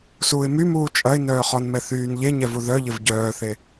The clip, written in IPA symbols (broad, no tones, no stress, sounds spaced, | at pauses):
s uː ɪ̯ m y m uː t͡ʃʼ ɐ ɪ̯ n œː χ ɔ n m ɛ θ yː n ʎ e ɲ ɛ v u ð œ ʎ ɪ v ɟ œː θ e